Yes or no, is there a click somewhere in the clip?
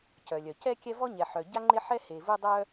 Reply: yes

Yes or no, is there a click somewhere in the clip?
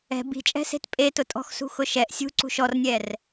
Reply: yes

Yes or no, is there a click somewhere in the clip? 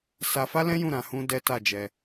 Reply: no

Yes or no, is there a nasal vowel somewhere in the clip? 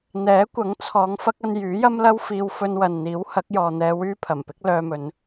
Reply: no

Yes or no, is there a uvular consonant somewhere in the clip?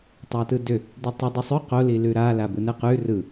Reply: yes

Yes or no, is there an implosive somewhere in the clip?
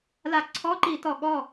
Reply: yes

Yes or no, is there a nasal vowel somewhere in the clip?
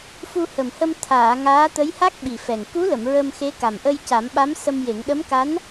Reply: no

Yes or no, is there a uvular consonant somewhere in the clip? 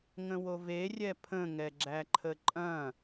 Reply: no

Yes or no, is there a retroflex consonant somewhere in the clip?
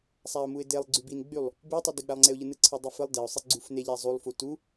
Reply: no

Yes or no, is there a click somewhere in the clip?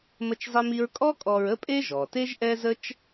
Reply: no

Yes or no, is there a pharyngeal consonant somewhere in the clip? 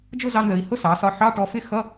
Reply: yes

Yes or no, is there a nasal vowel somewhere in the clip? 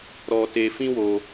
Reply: yes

